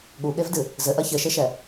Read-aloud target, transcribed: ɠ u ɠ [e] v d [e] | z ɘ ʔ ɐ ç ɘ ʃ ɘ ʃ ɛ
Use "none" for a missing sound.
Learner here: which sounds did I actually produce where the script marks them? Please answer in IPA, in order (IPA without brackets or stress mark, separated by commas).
e, ɨ